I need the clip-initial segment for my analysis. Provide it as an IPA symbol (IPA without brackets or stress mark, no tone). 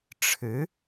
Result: ʈ͡ʂʰ